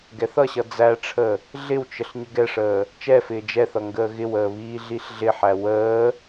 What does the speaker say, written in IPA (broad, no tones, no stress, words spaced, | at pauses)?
ɡɛθʌɕʌ d͡zæʈ͡ʂʰə | ɮɪwt͡ʃəɬ ɲəɡɛʂəː | t͡ʃɛ fɪːd͡ʒɛθʌ ŋɡəːɣɪwəː βiːɮiɬɮɪħæ wəː